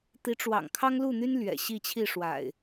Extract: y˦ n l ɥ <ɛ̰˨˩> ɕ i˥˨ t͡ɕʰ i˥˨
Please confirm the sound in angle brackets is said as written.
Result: yes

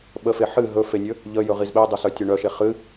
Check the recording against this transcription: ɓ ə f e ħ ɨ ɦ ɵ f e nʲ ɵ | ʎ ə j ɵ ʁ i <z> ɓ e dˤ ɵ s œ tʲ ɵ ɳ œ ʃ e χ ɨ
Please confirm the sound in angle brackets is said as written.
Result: yes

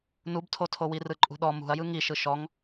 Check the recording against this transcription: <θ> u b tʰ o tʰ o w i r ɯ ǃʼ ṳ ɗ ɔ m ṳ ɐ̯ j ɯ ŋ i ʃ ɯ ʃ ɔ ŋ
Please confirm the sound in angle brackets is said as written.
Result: no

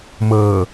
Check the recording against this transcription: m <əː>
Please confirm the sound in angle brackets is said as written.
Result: yes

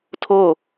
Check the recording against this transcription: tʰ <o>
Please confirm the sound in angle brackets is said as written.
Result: yes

